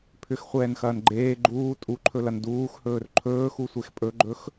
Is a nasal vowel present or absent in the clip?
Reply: absent